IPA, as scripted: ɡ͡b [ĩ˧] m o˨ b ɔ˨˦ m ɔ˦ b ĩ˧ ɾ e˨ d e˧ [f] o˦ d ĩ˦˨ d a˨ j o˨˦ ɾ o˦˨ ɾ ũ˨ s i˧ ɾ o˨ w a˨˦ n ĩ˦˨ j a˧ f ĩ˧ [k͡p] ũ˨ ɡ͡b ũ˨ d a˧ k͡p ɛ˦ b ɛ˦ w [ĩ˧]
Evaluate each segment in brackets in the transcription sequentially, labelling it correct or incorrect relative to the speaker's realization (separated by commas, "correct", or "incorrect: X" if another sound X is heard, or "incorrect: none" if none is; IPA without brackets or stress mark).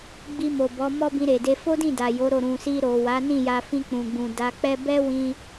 incorrect: i˧, correct, correct, correct